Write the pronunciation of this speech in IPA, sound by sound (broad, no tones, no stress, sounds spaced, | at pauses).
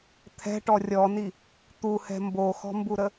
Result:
t̪ʰ ɛ̤ ʈ ɔ rʲ ɔ n i | t̪ u h ɛ̤ m b o x ɔ̤ m b u ɾ ə